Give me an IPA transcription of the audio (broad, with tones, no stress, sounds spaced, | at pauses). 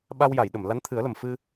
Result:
ɓ a˧ w j a˨˩˨ j ɗ ə˨˩˨ m l a˧˥ n t̪ʰ ɨ˨˩˦ ə̯ l ə˨˩ m f ɨ˧